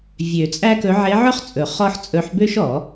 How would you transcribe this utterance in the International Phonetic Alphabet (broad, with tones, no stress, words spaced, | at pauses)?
vʲø˨˩˦ t͡sʼæ˥kɵ˧˥ ʕe˧˥ʕɵ˥χt͡sʼɵ˨˩˦ χɔ˥ħt͡sʼɵ˧˥ħ bø˥ʃɔ˨˩˦